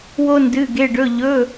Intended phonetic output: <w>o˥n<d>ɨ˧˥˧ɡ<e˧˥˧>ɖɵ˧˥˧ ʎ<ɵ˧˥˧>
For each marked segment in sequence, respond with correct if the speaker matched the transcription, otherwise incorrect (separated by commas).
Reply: correct, correct, correct, correct